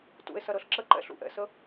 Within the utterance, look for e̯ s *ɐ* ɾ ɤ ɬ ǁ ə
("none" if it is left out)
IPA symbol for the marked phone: ɐ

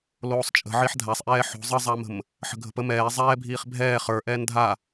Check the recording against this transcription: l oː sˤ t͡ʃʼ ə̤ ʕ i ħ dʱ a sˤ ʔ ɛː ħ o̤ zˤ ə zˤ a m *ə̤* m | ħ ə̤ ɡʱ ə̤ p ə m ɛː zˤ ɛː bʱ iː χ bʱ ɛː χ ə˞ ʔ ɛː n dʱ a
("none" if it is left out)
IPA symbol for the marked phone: ə̤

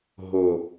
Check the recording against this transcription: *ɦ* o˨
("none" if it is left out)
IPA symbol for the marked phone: ɦ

